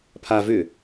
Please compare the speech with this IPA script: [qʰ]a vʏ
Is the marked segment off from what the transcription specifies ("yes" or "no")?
yes